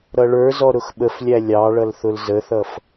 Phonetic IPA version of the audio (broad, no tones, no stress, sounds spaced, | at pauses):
ɾ ʌ ɭ ə˞ z ɔ ɾ ʊ x ɓ ə f lʲ æ lʲ ɑ ɭ ʌ l θ ʊ l z ə θ ʌ f